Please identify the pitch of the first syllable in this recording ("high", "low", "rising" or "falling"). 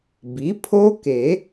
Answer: rising